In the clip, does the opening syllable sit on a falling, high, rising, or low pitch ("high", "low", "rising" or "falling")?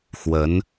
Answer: rising